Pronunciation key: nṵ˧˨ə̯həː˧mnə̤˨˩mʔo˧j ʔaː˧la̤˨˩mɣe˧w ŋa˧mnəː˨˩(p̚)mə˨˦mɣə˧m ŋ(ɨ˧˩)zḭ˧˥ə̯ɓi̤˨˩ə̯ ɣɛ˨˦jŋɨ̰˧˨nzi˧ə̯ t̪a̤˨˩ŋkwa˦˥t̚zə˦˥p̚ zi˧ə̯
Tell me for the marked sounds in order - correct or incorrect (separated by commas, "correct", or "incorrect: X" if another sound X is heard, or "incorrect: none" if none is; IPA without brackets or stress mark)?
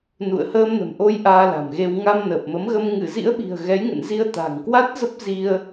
correct, correct